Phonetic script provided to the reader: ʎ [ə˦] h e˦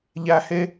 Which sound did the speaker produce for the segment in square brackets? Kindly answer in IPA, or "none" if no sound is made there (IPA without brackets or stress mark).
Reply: æ˦